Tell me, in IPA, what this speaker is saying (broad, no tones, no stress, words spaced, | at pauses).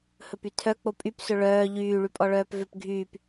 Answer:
hɵpytʰœ k͡popʼyp sɵɭœː ʎyː ɭypʼɔɭœːpvøp ɡʱyːp